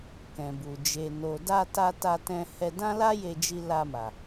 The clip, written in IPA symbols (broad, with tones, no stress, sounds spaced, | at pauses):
k ɛ̃˨ b u˨ d͡ʒ e˨ n o˨ d a˧ t a˧ t a˧ t ɛ̃˧ h ɛ˧ d ã˦ l a˦ j e˧ d͡ʒ i˧ l a˧ m a˨